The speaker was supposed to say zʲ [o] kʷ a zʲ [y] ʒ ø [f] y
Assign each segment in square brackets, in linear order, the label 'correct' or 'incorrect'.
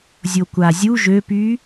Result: correct, incorrect, incorrect

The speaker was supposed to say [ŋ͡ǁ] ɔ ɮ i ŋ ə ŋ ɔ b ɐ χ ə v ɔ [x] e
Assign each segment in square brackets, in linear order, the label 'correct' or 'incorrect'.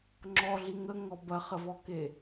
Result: correct, incorrect

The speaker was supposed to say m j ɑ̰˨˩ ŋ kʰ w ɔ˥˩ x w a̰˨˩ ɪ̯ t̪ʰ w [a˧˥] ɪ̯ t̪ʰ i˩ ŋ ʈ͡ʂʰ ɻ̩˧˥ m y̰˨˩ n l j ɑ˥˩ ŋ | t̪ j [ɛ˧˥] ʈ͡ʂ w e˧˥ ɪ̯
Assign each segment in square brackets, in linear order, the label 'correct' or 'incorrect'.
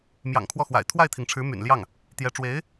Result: incorrect, correct

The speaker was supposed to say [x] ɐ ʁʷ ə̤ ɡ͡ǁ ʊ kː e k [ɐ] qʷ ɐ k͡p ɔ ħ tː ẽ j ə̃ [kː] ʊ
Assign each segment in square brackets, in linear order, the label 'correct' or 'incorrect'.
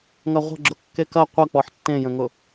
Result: incorrect, correct, incorrect

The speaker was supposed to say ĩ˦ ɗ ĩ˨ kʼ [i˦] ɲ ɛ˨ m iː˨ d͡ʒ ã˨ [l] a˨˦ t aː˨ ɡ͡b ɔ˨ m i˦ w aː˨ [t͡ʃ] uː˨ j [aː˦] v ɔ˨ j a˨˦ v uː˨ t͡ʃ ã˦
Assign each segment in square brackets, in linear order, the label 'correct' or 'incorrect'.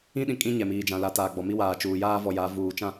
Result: incorrect, correct, correct, correct

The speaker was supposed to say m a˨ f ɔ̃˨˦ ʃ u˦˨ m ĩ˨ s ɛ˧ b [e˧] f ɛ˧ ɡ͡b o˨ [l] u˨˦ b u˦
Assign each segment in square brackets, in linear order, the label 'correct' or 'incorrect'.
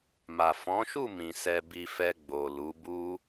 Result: incorrect, correct

